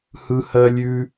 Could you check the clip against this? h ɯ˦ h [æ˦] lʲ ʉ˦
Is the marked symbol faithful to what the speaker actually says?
no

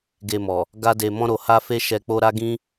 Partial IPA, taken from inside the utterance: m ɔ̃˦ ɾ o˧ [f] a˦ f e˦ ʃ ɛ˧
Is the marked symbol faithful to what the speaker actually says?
no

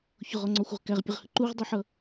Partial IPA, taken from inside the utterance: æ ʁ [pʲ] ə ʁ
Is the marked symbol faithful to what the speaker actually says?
yes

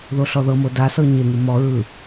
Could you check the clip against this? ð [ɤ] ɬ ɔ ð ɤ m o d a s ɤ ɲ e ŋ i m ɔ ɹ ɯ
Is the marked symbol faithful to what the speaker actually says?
no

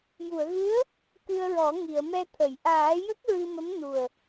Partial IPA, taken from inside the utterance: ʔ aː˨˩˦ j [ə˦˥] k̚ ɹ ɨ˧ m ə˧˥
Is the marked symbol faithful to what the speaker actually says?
yes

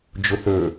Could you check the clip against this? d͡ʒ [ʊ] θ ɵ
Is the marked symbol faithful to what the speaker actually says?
yes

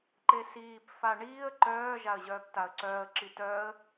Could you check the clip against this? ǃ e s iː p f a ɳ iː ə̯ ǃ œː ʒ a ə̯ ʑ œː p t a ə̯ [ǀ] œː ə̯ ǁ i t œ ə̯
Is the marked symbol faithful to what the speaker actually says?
yes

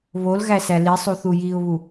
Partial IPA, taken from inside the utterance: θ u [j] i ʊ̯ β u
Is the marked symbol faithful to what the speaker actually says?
yes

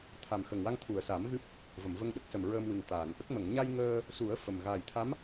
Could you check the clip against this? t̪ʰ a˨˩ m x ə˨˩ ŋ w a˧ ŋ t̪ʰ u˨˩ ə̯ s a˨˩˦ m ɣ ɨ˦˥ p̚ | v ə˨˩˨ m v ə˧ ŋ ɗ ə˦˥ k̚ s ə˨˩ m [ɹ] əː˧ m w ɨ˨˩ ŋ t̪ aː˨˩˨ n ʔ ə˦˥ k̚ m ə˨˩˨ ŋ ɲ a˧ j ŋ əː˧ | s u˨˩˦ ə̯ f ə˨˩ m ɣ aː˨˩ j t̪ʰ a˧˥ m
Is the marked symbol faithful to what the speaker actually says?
yes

